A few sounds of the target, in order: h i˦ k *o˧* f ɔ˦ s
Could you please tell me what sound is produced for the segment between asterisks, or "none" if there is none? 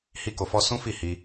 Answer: o˧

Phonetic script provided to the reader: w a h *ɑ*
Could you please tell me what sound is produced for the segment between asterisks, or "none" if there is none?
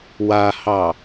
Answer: ɑ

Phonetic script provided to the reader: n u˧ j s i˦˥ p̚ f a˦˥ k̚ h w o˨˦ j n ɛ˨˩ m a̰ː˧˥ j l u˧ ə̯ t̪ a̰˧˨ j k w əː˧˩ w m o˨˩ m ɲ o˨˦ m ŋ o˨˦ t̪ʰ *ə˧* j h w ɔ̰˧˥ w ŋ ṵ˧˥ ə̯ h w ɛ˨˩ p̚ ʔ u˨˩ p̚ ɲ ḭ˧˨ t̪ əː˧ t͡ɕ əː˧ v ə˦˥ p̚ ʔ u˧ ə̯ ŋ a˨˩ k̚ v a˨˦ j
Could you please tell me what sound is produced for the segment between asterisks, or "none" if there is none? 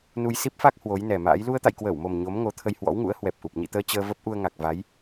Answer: ə˧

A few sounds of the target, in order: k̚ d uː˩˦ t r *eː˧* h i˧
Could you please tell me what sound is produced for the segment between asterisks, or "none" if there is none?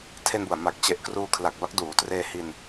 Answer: eː˧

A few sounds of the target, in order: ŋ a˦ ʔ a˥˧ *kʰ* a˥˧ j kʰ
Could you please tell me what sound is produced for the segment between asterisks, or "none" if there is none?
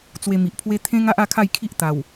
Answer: kʰ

